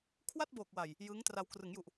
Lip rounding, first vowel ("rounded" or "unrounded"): unrounded